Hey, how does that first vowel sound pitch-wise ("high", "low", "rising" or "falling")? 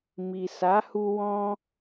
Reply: low